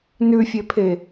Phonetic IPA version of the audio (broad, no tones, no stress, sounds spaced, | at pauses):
n ʉ fʲ e pʰ e